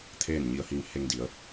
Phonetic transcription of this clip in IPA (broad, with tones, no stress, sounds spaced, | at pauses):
t̪ʰ eː˥˨ n ɲ i˧ ə̯ h i˧ ŋ h e˧ ŋ d i˩˧ ə̯